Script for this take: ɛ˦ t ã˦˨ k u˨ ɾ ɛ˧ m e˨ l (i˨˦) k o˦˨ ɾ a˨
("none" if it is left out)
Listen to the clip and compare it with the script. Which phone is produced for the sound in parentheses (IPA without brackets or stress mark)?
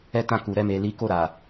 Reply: i˨˦